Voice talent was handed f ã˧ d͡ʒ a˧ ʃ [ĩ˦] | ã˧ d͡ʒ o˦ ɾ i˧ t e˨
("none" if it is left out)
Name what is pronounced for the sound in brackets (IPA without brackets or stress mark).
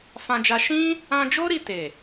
ĩ˦